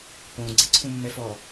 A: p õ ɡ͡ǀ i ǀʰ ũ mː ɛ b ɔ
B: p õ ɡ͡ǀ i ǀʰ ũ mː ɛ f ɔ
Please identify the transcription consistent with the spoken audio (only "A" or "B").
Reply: B